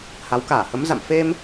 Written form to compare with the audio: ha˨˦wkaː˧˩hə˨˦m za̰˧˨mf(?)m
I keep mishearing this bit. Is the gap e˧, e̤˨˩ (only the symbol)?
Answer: e˧